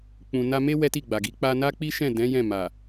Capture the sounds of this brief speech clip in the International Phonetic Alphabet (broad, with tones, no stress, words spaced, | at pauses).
k͡pũ˨na˧me˦ wɛ˦ti˦˨ɡ͡ba˨ɡi˨˦ k͡pa˧na˦k͡pi˦ʃɛ̃˦˨ dɛ̃˨˦ jɛ̃˦˨ma˨